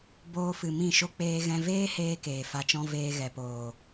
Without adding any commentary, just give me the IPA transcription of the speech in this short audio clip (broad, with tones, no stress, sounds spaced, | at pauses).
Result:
b oː˧ f ɨ˨ m ĩ˦˨ ʃ o˦ k͡p eː˧ ɣ ɛ̃˧ v eː˦ h eː˧ k eː˨ f a˧ t͡ʃ ɔ̃˦ v eː˧ ɣ ɛ˨ p oː˨